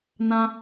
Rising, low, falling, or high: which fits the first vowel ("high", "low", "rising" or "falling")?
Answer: high